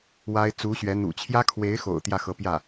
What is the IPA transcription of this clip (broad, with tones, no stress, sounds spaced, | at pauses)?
w a˥ ɪ̯ t͡s u˧˥ ɕ ɥ ɛ˧˥ n̪ ṵ˨˩ t͡ɕʰ j ä˥ kʰ w e˧˥ ɪ̯ x o̰˨˩ ʊ̯ t̪ j ä˥˩ x ɤ˧˥ p j ä˥˩